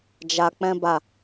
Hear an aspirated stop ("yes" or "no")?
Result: no